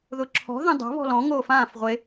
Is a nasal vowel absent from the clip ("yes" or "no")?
no